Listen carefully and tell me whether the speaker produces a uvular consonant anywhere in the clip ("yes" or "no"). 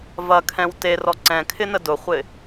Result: yes